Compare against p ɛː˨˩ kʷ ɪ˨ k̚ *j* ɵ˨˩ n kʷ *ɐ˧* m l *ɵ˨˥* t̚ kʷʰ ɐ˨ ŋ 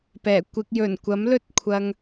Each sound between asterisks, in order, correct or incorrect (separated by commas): correct, incorrect, incorrect